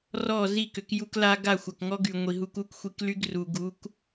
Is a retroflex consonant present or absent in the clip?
absent